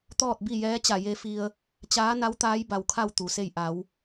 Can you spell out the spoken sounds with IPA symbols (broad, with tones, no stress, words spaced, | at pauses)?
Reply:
t̪ɔː˥˨t̚bi˥˨jɛː˧˥t͡ɕa˧˩ je˧fi˧ə̯ | t͡ɕaː˧˥na˧˥w t̪aː˧˥jba˩wkʰa˥˨w t̪u˩se˥˨j ʔa˩˧w